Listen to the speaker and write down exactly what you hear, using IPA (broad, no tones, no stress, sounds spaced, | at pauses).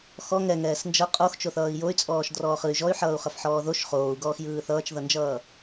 x ɔ ŋ ɛ ŋ ɛː s n d͡ʒ ʌ qʼ o x t͡ʃ o θ ʌː i̯ j o y̯ t͡sʼ ɔː ʃ d r ɔː χ ɯ y̯ ʒ ɔ y̯ ħ ʌː u̯ χ ʌ f ħ ɔː ð o ʃ χ oː u̯ ɡ ɔː x j ɯː θ ʌː t͡ʃ ð ʌ n d͡ʒ ʌː